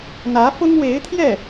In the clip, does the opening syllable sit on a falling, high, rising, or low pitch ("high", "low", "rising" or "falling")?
rising